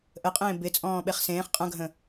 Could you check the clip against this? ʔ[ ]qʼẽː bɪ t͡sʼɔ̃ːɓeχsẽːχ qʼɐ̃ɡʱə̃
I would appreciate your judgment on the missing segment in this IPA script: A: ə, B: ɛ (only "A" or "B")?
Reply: A